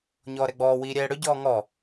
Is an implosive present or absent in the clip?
absent